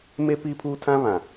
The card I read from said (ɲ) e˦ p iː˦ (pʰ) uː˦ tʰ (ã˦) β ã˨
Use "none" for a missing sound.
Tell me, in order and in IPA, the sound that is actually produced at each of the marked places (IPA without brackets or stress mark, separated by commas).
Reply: m, pʰ, ã˦